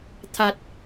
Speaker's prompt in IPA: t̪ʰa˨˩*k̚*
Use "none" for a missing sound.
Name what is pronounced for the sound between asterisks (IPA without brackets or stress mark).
t̚